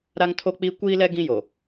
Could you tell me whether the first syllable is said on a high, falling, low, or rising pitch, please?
high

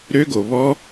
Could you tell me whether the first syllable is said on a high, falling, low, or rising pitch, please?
high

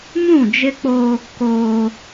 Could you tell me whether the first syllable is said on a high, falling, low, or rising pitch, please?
falling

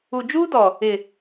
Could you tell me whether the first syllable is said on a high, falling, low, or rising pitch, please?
low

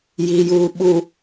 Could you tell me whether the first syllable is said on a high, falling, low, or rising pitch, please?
low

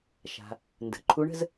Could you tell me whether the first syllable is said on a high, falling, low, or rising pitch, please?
low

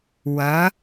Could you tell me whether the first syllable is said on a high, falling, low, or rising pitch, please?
rising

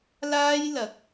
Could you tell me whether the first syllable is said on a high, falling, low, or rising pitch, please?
high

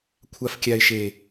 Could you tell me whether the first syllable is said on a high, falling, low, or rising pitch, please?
low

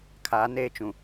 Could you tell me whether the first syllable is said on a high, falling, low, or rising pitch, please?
rising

